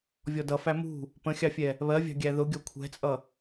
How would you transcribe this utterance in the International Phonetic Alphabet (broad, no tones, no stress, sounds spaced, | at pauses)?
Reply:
vʲ ɔ d ʌ f æ m ṳ | p ə̃ xʲ ɑ fʲ ɛ | β ɜ vʲ ɑ̤ ɡʲ æ ð ʊ ɡʲ ɔ kʷʰ ɛ̤ t͡sʼ ʌ